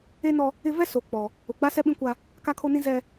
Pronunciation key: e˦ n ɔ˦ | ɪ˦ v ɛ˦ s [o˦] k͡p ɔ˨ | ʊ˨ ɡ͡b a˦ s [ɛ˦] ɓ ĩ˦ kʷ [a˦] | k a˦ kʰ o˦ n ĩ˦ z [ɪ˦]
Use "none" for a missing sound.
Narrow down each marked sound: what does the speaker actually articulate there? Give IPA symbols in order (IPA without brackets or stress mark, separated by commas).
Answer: o˨, ɛ˦, a˦, ɛ˦